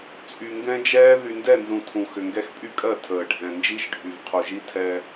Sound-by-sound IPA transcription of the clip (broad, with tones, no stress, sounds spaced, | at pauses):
t͡sʼ y˨ ŋ ɡ ɛ̃˦ d͡ʒ ɛː˦ ð y˨ n d ɛ˦˨ n z ũ˨ tʰ ũ˨ x ʏ˨ ŋ ɡ ɛ˦ x pʼ y˦ kʼ ɜ˦˨ tʰ əː˨ ɖʱ ɛ̃˨ n d͡ʒ i˦ ʃ ɖʱ y˨ v qʰ u˨ ʒ i˦ tʰ ɛ˦